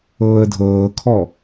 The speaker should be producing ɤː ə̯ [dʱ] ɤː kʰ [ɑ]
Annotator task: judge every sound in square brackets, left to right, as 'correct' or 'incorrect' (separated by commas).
correct, incorrect